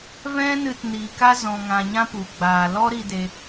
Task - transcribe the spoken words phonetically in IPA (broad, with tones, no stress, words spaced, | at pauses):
vɛ̃˦nɨ˧t niː˨ka˦ zɔ̃˨ŋã˨ ɲã˦pu˨ ɡ͡baː˨lɔ˦ɾi˧de˧